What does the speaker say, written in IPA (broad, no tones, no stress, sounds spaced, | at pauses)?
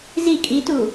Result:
z i kʼ i t u